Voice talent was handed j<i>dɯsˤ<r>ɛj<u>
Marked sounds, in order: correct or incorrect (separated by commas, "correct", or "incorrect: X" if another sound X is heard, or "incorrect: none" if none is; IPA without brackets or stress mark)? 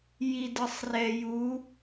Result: correct, correct, correct